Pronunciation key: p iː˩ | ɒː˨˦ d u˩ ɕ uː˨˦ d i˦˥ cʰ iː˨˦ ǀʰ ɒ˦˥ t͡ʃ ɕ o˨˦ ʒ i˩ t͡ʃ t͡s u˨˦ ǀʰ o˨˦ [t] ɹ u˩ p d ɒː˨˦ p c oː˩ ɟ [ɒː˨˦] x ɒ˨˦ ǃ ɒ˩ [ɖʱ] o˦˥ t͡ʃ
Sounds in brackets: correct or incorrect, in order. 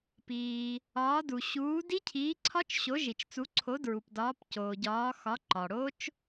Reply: incorrect, correct, incorrect

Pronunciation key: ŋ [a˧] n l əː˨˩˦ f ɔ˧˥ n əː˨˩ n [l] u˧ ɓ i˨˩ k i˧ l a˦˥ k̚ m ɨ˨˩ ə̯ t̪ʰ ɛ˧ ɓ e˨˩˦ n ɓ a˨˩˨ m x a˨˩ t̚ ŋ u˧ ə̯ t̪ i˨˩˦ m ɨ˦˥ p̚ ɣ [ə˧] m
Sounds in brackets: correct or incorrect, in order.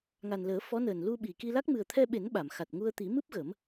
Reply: incorrect, correct, incorrect

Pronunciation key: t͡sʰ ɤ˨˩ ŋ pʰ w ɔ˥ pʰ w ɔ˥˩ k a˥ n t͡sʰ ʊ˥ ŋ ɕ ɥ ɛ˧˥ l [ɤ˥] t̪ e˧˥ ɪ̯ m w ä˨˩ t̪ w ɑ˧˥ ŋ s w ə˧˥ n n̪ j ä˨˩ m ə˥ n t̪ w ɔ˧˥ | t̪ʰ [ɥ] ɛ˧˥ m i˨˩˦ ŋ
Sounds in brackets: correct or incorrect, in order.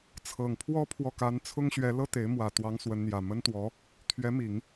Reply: correct, correct

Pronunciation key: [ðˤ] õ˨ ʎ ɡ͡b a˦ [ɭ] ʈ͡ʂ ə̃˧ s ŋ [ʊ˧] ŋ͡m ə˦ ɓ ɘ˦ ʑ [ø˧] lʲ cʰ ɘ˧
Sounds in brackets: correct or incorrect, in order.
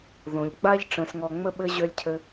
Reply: incorrect, incorrect, incorrect, correct

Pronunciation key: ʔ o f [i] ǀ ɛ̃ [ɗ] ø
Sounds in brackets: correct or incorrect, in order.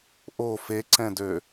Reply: incorrect, incorrect

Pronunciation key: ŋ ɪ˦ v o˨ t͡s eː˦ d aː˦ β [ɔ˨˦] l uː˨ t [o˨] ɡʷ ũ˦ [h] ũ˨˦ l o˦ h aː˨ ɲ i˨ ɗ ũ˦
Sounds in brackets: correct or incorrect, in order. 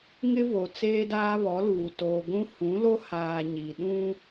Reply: correct, incorrect, correct

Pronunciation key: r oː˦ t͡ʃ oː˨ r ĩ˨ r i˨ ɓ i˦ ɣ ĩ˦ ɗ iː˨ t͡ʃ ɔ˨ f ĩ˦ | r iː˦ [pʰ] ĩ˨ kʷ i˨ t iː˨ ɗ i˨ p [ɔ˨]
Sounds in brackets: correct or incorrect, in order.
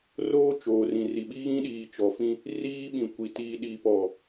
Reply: incorrect, correct

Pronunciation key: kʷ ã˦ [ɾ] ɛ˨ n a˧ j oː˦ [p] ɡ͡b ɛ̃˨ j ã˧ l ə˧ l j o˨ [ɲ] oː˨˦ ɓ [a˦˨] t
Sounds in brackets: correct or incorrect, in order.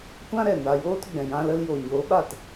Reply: correct, incorrect, correct, correct

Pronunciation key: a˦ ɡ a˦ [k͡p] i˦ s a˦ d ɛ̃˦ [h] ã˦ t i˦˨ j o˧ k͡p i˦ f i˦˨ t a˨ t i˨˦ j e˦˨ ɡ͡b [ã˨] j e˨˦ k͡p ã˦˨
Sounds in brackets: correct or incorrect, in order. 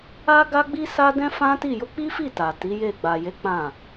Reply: incorrect, incorrect, incorrect

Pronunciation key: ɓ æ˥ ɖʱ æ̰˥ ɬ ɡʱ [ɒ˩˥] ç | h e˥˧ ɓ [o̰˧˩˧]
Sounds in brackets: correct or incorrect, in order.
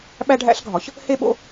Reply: correct, incorrect

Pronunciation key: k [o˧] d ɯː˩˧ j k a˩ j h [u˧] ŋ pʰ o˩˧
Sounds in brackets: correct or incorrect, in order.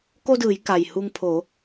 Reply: correct, correct

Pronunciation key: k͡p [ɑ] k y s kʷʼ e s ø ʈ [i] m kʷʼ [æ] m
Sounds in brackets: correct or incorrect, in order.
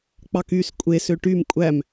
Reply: correct, incorrect, correct

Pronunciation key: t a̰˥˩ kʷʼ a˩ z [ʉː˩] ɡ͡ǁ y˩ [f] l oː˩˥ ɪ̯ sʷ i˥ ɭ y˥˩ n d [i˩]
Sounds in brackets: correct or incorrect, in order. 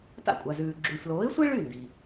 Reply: correct, correct, correct

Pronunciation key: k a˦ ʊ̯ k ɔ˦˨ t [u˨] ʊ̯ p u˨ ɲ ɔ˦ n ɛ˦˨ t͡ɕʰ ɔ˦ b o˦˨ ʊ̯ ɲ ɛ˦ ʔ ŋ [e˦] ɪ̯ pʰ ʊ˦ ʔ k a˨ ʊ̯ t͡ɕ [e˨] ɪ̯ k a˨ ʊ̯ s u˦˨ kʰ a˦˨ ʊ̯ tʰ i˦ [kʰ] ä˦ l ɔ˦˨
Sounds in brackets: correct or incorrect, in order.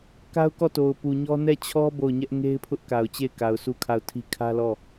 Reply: incorrect, correct, incorrect, correct

